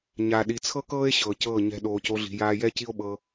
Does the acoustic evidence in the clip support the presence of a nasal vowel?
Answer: no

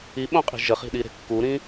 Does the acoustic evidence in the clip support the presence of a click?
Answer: no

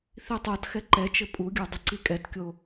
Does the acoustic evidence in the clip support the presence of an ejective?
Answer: yes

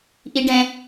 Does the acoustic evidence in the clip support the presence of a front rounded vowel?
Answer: no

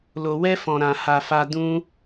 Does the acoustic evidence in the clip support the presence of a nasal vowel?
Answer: yes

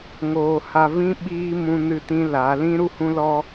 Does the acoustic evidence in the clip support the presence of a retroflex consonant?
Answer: no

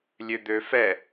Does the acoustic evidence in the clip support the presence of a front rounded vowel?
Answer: yes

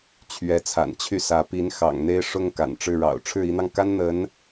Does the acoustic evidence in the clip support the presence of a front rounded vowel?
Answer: yes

